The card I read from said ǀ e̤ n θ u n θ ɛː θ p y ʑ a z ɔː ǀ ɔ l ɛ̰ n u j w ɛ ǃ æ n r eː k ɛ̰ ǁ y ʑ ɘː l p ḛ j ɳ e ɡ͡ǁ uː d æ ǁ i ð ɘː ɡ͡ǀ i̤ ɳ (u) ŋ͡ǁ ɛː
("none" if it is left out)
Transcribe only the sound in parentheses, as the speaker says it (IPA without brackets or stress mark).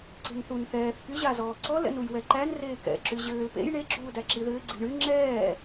y